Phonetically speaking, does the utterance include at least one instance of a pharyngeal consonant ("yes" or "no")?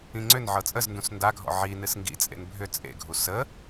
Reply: yes